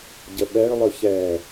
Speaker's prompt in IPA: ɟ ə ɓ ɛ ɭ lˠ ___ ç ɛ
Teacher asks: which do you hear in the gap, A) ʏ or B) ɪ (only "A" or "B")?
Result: A